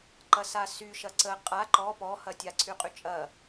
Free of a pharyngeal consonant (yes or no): yes